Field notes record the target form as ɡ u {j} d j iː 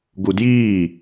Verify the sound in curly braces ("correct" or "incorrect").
incorrect